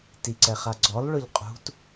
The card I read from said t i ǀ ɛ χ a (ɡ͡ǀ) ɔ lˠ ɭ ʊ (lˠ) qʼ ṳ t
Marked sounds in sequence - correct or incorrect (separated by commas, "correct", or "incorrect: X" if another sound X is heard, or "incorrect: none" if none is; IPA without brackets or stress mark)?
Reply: correct, incorrect: ʎ